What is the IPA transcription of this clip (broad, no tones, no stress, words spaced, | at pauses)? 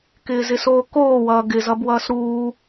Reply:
kɪːzɪsoːkoː wʌːɡɪ zʌbwʌːsɾuː